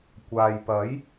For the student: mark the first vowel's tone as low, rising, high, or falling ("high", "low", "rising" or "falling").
low